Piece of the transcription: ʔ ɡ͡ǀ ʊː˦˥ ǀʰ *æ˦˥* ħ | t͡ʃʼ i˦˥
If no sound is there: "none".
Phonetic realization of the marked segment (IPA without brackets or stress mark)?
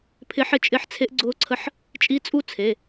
ə˦˥